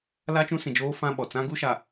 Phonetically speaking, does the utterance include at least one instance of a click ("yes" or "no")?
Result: no